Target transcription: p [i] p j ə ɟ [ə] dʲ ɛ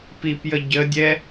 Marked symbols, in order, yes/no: yes, yes

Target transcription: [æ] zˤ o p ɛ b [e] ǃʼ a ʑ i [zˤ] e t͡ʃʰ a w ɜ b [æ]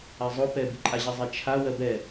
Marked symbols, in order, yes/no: no, no, yes, no

